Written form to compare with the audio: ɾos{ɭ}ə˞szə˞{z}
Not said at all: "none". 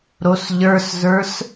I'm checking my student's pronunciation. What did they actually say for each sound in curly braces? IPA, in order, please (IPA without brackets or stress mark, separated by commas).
ʎ, s